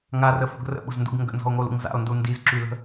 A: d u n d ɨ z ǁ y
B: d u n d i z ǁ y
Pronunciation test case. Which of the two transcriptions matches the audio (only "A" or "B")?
B